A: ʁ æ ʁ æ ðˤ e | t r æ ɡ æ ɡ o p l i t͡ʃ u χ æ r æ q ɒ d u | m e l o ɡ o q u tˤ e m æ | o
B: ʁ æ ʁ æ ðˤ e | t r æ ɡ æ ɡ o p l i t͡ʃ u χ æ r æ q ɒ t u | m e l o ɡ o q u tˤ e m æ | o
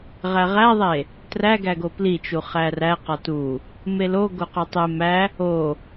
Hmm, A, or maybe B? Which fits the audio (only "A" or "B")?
B